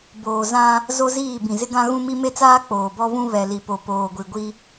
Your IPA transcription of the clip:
b oː˨ z ã˦ | z o˦ z iː˦˨ b ĩ˨ z ɪ˦ ɡ ã˦ ɣ ũ˦ m i˦ m e˦ t͡s aː˦ k͡p oː˨ b ɔ˦ β ũ˦ β ɛ˨ l i˨ p o˨ p oː˨ ɡʷ i˨ ɡʷ i˦

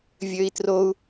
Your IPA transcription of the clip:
vʲ ø i̯ t r o u̯

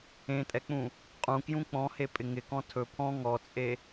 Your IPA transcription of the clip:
ẽ tʼ ɛ k͡p ũ | qʼ ũ k j ũ k͡p ɔ̃ h e pʼ ɪ ŋ ɪ k ɔ̃ tʰ ɵ pʰ ɔ̃ ŋ ɔ t͡sʼ e

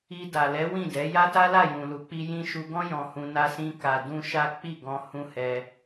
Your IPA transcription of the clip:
i˧ d a˨ l ɛ˨˦ w ĩ˦˨ d ɛ˨˦ j a˦ t a˦ l a˦˨ j ũ˨ l u˨˦ k͡p i˦ j ĩ˧ ʃ u˧ ɡ ɔ̃˦ j ɔ̃˧ h ũ˧ n a˧ s ĩ˧ k a˨ d ũ˧ ʃ a˦ k͡p i˦˨ ɡ ɔ̃˧ h ũ˦ h ɛ˧

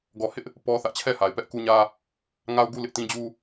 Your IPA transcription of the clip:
ɡ ɔ˨ h ɪ˦ ʔ | p ɔ˦ θ ä˦ ʔ t͡ɕʰ ɛ˦˨ h a˨ ɪ̯ p ɛ˦ ʔ k u˦ ɲ ä˦ | ŋ a˦ ʊ̯ ɡ u˦ l ɪ˦ ʔ t ĩ˦ d͡ʑ u˦

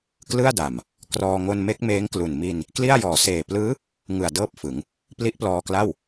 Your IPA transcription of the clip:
k l ɯ˥˩ a̯ d a˨˩ m | k r ɔː˧ ŋ o˧ n m e˦˥ k̚ m eː˦˥ ŋ k l u˨˩ n m i˧ n | k l i˥˩ a̯ j ɔː˨˩ s eː˨˩ p l ɯː˦˥ | ŋ ɯ˨˩ a̯ d ɤː˥˩ p̚ f ɯ˩˦ ŋ | p l i˦˥ ʔ p l ɔː˧ k l a˥˩ w

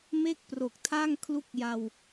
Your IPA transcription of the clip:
m e˥˩ k̚ p r o˨˩ k̚ tʰ a˥˩ ŋ kʰ l u˦˥ k̚ j a˧ w

